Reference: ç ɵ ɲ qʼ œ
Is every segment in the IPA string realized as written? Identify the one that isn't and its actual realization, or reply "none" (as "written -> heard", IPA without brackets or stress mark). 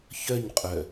ɵ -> œ